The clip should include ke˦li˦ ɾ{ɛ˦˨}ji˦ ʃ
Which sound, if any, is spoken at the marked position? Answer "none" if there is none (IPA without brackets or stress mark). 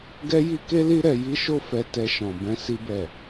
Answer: ɛ˧